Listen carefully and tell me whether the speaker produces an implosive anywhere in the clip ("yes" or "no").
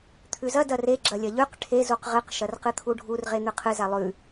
no